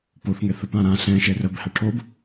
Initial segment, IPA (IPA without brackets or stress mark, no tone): p